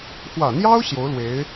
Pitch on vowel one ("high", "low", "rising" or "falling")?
low